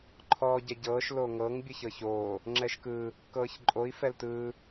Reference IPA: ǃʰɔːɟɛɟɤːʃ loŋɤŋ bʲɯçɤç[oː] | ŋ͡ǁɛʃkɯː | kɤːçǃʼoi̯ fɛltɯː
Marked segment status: correct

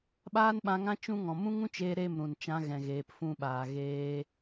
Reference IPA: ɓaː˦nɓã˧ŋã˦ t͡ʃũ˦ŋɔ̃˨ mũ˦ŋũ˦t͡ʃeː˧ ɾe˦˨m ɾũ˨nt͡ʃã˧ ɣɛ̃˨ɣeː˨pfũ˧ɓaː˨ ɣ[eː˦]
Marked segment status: correct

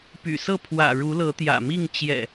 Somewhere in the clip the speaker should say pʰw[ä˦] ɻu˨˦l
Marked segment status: incorrect: ä̰˨˩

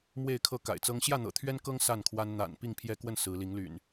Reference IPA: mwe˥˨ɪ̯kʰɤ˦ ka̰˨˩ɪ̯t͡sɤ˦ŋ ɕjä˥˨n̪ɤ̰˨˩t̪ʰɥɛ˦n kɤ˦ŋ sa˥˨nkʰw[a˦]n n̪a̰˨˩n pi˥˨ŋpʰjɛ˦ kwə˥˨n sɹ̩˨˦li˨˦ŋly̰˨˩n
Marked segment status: correct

